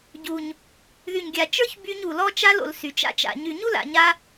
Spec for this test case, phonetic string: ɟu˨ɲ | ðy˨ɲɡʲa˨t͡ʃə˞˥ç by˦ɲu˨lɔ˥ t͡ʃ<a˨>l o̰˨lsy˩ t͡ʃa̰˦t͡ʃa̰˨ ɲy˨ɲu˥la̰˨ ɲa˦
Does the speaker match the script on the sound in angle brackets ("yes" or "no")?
no